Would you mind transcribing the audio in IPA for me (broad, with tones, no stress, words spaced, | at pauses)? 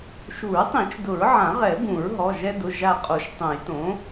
ʃu˨˩˦ɹtˤĩ˨˩˦t͡ʃ dʊ˨˩˦ɹʕã˨˩˦ʁɛ˨˩˦ bũ˨˩˦ɹɦɔ˩˧˩ʒɛ˦dʊ˩˧˩ ʒa˧˩qʼo˨˩˦ʃ tˤũ˨˩˦jtõ˩˥